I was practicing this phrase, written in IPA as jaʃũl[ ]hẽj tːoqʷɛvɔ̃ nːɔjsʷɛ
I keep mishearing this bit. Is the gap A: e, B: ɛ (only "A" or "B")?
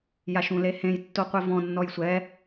A